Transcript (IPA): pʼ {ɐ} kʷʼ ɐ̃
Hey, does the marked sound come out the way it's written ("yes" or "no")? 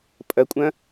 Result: yes